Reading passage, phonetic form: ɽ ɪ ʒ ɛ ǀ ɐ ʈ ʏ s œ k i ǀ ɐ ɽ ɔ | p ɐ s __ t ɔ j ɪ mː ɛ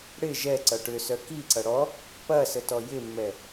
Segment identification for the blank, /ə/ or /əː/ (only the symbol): ə